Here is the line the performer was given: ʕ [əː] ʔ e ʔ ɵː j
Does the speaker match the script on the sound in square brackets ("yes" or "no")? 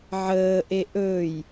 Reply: yes